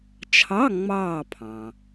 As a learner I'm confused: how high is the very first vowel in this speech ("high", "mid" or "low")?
low